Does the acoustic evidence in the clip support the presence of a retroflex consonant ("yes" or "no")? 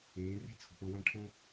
yes